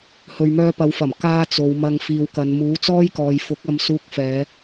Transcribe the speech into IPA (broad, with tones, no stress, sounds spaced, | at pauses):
h ɵ˨ ɥ m œː˧ p ɐ˨˧ w f ɐ˨˩ m k aː˥ t͡s o˨˧ w m ɐ˨ ŋ f iː˨ w k ɐ˨˧ n m uː˨˥ t͡s ɔː˥ j k ɔː˨ j f ʊ˨˥ k̚ ɐ˧ m s uː˧ k̚ f ɛː˨˧